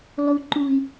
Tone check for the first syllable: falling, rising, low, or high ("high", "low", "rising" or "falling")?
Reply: high